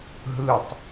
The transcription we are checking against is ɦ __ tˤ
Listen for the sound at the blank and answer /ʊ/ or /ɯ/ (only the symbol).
ɯ